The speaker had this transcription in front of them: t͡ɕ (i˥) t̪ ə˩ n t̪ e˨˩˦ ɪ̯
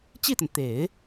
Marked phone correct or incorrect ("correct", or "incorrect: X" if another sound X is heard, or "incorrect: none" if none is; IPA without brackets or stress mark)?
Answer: incorrect: i˥˩